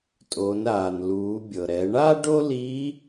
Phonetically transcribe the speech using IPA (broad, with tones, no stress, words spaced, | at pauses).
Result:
tʼoː˩˧nɾaː˩nluː˩˧ bʲɤ˩ɾɛ˩˧ɳaː˥ ɖo˥li˧˥